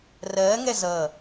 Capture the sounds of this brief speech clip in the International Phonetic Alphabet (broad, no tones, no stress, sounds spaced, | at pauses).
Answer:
r ɜː ŋ ɛ z ʌ